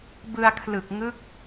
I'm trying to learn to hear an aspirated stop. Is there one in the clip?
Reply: yes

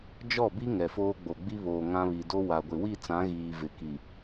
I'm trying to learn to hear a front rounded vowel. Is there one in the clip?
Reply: no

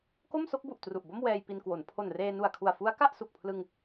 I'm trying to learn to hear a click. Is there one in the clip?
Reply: no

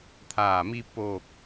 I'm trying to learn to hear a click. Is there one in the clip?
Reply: no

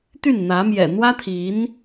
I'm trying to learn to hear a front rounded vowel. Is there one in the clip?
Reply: yes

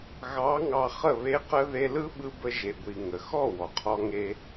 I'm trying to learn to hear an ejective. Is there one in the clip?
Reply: no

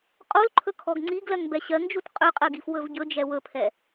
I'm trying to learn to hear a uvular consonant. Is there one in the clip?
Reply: yes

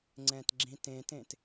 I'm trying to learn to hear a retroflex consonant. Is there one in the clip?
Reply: no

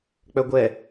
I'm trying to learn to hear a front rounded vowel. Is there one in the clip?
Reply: yes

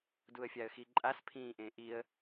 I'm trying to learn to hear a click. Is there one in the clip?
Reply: yes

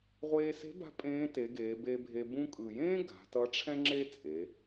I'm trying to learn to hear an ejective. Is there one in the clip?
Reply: yes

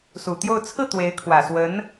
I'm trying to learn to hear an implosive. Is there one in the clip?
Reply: no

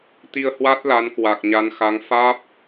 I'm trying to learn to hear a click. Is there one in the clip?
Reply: no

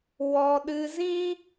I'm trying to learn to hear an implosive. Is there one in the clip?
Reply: yes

